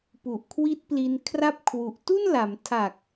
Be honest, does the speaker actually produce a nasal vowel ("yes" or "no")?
no